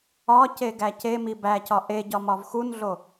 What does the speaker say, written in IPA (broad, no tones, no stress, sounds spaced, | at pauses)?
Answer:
ɒ c e ɡ æ c e m i b æ c ɒ ʔ e ɟ ɒ m ɒ v x u n ɮ o